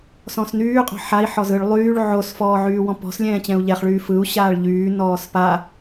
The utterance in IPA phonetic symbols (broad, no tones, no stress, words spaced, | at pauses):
sɔ̃snyː qʼɔ̤ħai̯ ħɔzɯɭ lˠyːɭ ʕos fɔːʕyːwɔ̃pɔ̤s lʲɛ̃ːt͡ɕɛ̃u̯ʎɛχɭyː fɯu̯ ɕaːɭʎyː nɔːspa